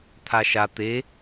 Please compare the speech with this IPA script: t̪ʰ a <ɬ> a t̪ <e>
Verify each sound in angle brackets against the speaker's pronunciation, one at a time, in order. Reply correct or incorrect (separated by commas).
incorrect, correct